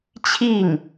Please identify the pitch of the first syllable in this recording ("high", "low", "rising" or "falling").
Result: falling